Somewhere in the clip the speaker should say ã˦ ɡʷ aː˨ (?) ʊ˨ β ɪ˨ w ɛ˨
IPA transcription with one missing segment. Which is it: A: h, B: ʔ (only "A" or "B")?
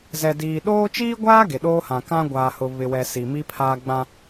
A